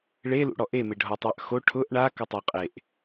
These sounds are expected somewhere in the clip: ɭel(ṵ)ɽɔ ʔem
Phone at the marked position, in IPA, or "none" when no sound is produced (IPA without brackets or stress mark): ṵ